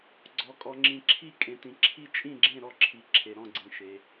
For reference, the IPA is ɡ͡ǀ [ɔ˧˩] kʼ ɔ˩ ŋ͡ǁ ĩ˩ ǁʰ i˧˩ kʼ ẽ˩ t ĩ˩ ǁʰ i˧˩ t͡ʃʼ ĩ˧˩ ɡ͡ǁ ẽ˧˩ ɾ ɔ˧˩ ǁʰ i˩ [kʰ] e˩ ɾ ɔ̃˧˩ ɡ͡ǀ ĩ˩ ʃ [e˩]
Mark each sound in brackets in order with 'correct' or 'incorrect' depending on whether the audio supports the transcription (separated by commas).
incorrect, incorrect, correct